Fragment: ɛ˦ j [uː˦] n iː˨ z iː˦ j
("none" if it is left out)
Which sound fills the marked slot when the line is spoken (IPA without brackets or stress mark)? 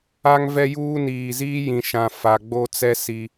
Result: uː˦